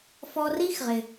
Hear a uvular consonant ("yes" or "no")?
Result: yes